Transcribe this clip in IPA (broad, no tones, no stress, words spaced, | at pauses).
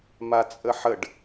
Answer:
mat͡sʼəħəɖ